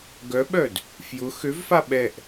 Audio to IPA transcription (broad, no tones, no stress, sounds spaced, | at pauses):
ɡ œ ɓ œ d | f j ʊ x ø v f a ɓ ɛ ʔ